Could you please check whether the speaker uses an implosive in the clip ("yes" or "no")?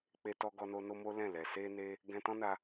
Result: no